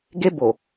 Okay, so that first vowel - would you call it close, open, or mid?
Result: mid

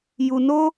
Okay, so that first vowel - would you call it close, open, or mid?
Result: close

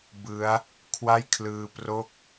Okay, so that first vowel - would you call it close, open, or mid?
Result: close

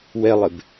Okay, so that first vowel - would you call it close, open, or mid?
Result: mid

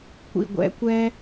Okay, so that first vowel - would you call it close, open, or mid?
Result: close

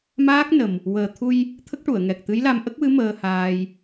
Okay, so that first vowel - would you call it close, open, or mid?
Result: open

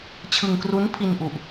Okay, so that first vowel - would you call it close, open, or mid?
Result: close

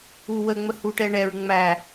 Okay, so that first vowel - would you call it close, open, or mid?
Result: close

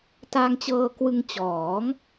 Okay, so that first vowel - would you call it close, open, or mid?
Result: open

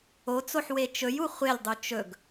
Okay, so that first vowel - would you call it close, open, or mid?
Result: mid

